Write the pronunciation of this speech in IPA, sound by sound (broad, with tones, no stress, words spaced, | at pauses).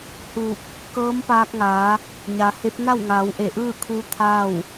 huː˧˩k̚ | kɤː˧˥mpaː˧k̚ŋaː˩˧ | ɲa˩˧he˧˥p̚ na˥˨wŋaː˩˧w ʔe˧˩ʔɯː˥˨kʰuː˧ t̪ʰa˥˨w